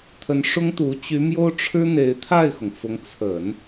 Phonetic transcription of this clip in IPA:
t̪ʰə˧˥nʂʊ˥ŋt̪u˧˥ t͡ɕy˧˥mjo˥ʊ̯ʈ͡ʂʰɻ̩˥ n̪e˧˥ɪ̯t̪ʰa˥˩ɪ̯xʊ˩ŋfʊ˧˥ŋ t͡sʰə˨˩˦n

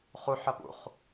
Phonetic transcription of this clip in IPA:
χuħɐ pṵχ

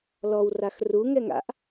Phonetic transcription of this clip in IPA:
lɔw raxruŋɛŋ a̰ʔ

